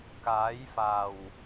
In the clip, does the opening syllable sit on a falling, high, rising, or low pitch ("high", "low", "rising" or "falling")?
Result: rising